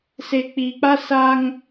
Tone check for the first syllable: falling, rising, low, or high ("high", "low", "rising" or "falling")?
low